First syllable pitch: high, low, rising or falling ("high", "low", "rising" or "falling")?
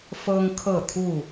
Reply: high